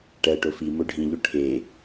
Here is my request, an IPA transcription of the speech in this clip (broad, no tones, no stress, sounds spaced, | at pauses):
ʈ ɜ ʈ o f i m o ɖʱ ĩ ʎ o ʈʰ e